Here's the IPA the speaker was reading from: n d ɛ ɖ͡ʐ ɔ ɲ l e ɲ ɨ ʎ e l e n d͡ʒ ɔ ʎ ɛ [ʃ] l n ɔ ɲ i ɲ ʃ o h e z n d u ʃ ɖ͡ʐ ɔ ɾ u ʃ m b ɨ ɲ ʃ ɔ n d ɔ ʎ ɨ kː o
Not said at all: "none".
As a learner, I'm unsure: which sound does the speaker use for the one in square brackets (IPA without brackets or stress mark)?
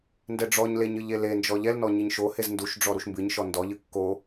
none